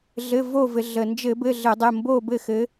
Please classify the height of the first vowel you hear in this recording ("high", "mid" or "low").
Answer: mid